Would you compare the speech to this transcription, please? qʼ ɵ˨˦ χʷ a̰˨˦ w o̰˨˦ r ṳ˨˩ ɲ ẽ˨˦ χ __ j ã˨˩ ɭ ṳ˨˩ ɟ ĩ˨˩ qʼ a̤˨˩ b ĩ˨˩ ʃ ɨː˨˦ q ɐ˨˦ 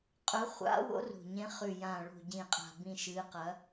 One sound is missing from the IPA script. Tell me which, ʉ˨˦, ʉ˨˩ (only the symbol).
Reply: ʉ˨˩